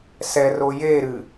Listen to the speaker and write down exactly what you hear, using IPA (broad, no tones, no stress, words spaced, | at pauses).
sɛ rojeɾɨ